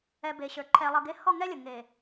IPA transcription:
ɛ˨ be˨ɕə˞˨ ǃʰɛ˨ lˠʌ˨ɡe˦ hɔ˦˨ŋɛ˦ lʲə˨ ŋe˨

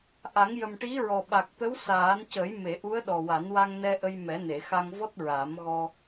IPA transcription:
ʔa˨˩˦ŋjə˨˩m ʈi˧˥ɹɔ˨˩ ɓa˨˩k̚t̪ə˧˥w saː˨˩˦ncə˨˩˦jme˨˩˨ʔu˧˥ə̯ ɗɔ˨˩wa˨˩˦nwa˧ŋnɛ˧ ʔə˧jmɛ˨˩˦ ne˨˩˨xa˧ŋvɔ˦˥t̚ ɹaː˨˩˦mɣɔ˧

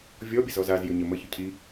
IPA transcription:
vʲɔbʲəzɔz azjʏɲə məçʏ cʰi

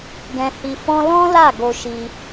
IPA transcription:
ɡɛ̃˧hi˧ fɔ̃˦ lɔ̃˦la˦˨ ɡo˧ʃi˧

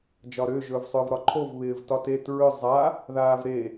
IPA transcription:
d͡ʒɒɾʏː ʒɵːvsˤʏːvɾɒǃʰov βɪːvtɒtet ɹʏ zˤa | ðaːvɾe

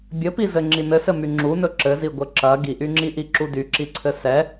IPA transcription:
bʲɘpizɘ ŋ͡ǁinɘsɘmy ŋ͡ǁunɵ ǁɘziɡʷɘ ǁɐ ɡiʔyŋ͡ǁiʔi ǁudyǁiǀʰɘ sɛ

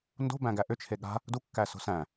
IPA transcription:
ndo̤ bæ̃ɡæʔʏ t͡ʃʰeɠa̤ | du kːæso̤sæ̃

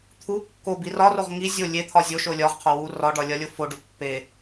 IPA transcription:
t̪ʰu kːo birɒroʁ ŋi zʲo lʲet̪ʰɒ zʲo ʃolʲɒʁqʰo wu rɒɖɒ lʲɒlʲofoɖo pːe

